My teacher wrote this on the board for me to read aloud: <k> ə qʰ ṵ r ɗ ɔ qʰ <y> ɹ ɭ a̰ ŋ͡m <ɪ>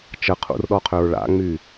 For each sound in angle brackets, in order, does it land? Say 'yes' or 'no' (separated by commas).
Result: no, no, no